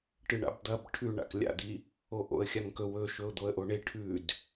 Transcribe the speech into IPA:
ʈ ɨ ɳ a̰ b d̪ ɐ b ʈʰ ʉ ɳ a̰ k lʲ a̰ d̪ i | o ʔ o̰ ə̯ xʲ a ŋ k ɵ w ɵ ʃ ɵ ʊ̯ d̪ o ə̯ ʔ o ɳ e ʈʰ ʉ d

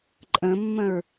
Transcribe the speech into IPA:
ǃʼ ə̃ mː ə̃ ɹ

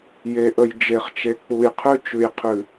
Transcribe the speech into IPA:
j e˨ ʔ ə˨ j d͡ʒ e˨ χ t͡ʃ e˨ k͡p u˨ j qʰ ʉ˦ t͡ʃ ʉ˨ j qʰ ʉ˨

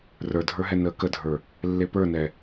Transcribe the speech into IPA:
r ə˞ dʱ ə˞ ɦ ɛ n əː k ə dʱ ə˞ | lː e p ə˞ n ɛ

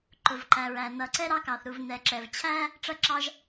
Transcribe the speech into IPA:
ǃ ʊ˩ v ǃ æ˩ ɹ æ˩ n ʌ˩ ǀ ɛ˥ ɾ ɑ˥ k ɑ˩ θ ɾ u˩ v n ɛ˩ ǁ ɛ˩ v t͡ɕʰ æ˥ | ʈ͡ʂ ʌ˥ ǁ ɑ˥ ʒ

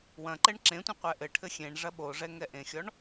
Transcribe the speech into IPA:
w ɐ̃ ǃ ɛ ɳ ǁ ẽ tʷ ẽ qʷ ɛ ʔ ɘ ʈʰ ɘ xʲ ẽ ɳ ʐ ɐ ɓ o ʐ ɛ ŋ ɛ ʔ ẽ xʲ ɔ ɳ

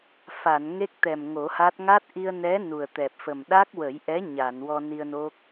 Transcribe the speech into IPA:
f a˨˩˨ n ŋ e˦˥ k̚ t̪ ɛ˨˩ m ŋ o˨˩˦ h a˦˥ t̚ ŋ a˦˥ t̚ ʔ i˧ ə̯ n ɛ˧˥ n u˨˩ ə̯ t̪ ɛ˨˩ p̚ f ə˨˩ m ɗ a˦˥ k̚ w ə˨˩˦ j ʔ ɛ˧˥ ɲ a˨˩˨ n w ɔ˧ n i˧ ə̯ n o˦˥ k̚

